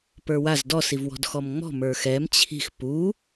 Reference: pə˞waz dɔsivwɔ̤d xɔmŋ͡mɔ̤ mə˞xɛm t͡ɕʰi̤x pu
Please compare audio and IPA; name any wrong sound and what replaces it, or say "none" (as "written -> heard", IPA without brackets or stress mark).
none